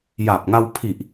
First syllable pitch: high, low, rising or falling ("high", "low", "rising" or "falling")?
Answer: low